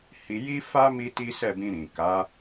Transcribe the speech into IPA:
h i˧ j i˦ f a˦ m i˦ t i˦ s ɛ˦˨ b ĩ˧ ɾ ĩ˨ k a˨˦

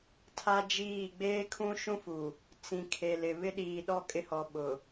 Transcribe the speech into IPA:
tʰ a˦ d͡ʒ iː˦˨ ɡ͡b eː˦ kʰ ũ˦ ʃ ũ˦ f u˨ | t͡s ĩ˨ kʰ e˨ l ɪ˨ β ɪ˦ ɗ iː˨ ɗ ɔ˦ kʼ ɪ˦ h ɔ˨ ɓ ʊ˨

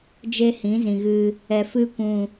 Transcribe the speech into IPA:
d͡ʒ e˦ h ĩ˨˦ z ĩ˨ ɣ ɨ˧ | ɛ˨ f ɨ˧ kʷ ũ˨

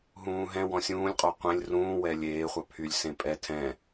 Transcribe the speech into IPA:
ɦ ũː ɦ ɛ̃ w ɔ̃ sʲ ũː lʲ qʼ ɔ qʷ ẽ lʲ r ũː w ɛ lʲ eː χʷ ɑ pʰ y lʲ s ẽ pʼ ɛ tʰ ɛ̃

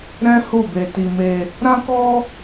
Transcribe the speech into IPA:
ɾ ɛ̃˦ h u˦˨ b e˧ t i˧ m e˧ | ɾ ã˦ k ɔ˦

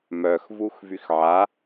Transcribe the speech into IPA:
m œ x v u x v y x ʕ a

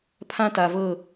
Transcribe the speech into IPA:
pʰ ã˦ t a˨ v ɤ˦˨

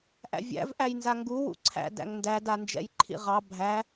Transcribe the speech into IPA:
ʔ æ̰ vʲ æ̰ v ʔ æ j n z a ŋ ɡ u w ṵ ǀʰ æ̰ d æ̰ ŋ n d æ d a n d͡ʒ ɛ̰ j ǃʰ ḭ ʁ ɑ bʱ æ

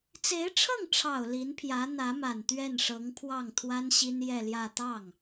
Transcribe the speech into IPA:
t͡s e˧˥ ɪ̯ ʈ͡ʂʰ ɤ˥˩ ŋ ʈ͡ʂʰ ɑ˨˩ ʊ̯ l i˧˥ n pʰ j ä˧˥ n̪ ä˧˥ m a˨˩ n t̪ ɥ ɛ˥˩ n ʂ ɤ˧˥ ŋ pʰ w ɑ˥˩ ŋ t̪ʰ w a˥ n ɕ i˥ n j ɛ˥˧ l j ä˥˧ t̪ ɑ˥˩ ŋ

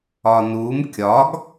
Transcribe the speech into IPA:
ɒ n u m kʲ ɒ ɡ

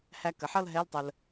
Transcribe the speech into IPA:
h æ˧ k ə˩˧ ħ ʌ˥˧ l ɦ ɛ˧˥˧ l tˤ ə˧ l

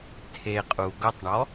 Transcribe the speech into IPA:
tʰ e qʼ u ɡ ʊ tˤ ɳ ɔ

